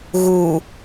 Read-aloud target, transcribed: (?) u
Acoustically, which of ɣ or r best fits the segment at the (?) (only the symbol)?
ɣ